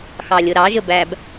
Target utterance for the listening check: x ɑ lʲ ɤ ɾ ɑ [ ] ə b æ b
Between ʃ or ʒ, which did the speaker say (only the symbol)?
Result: ʒ